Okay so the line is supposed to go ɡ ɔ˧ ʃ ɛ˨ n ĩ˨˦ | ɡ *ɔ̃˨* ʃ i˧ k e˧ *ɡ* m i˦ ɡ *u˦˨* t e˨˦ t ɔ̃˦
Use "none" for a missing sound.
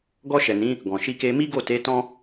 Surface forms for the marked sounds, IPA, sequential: ɔ̃˨, none, o˦˨

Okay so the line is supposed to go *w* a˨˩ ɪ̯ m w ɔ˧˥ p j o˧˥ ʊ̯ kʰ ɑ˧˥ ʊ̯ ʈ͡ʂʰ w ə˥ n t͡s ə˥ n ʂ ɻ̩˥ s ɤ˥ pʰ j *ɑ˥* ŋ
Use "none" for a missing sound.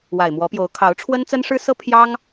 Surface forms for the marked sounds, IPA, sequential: w, ɑ˥

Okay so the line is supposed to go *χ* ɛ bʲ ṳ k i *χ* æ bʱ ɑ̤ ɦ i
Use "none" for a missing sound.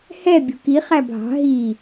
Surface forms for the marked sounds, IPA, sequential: h, χ

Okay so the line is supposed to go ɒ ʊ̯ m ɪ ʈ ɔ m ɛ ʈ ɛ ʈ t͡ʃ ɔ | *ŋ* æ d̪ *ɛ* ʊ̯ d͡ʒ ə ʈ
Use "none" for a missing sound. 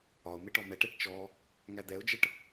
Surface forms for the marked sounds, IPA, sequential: ŋ, ɛ

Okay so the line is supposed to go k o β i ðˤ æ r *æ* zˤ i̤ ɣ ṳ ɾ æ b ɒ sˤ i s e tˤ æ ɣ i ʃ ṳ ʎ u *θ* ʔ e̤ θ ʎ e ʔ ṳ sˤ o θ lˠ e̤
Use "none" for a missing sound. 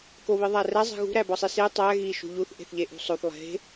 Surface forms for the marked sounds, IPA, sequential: æ, θ

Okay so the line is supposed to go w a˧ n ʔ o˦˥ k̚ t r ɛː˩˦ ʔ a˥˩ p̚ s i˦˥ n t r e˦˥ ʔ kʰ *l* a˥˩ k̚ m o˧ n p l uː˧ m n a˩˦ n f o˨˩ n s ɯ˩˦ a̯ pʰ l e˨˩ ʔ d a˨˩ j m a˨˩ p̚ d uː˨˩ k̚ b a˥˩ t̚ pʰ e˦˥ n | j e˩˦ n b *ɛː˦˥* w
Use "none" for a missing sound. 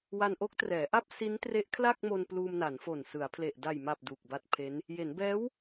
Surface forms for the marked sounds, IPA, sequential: l, ɛː˦˥

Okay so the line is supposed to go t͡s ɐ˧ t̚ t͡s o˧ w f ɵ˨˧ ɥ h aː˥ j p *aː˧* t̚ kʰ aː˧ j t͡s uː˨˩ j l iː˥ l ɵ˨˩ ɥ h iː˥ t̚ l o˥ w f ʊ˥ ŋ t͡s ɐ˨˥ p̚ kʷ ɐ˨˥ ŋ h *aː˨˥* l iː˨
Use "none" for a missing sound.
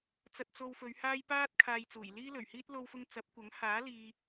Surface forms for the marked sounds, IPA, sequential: aː˥, aː˨˥

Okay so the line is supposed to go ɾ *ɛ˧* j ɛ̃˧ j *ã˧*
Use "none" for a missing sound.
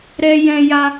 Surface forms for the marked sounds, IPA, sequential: ɛ˧, a˧

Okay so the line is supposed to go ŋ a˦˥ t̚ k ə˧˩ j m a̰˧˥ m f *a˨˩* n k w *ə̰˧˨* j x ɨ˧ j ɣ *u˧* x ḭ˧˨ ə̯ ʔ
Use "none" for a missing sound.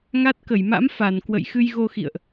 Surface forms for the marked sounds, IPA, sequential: a˧˩, ə̰˧˨, o˧

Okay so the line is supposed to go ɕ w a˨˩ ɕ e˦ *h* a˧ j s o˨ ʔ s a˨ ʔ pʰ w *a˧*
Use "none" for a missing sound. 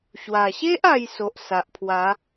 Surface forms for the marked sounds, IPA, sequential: ʔ, a˨˦

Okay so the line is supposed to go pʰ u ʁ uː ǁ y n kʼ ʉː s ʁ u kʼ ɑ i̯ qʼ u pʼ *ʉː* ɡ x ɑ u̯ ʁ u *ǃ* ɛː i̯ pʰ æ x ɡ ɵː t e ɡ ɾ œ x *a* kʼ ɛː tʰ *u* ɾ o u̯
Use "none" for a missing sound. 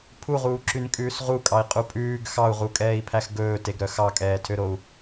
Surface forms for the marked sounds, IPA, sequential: ʉː, kʼ, ɑ, ø

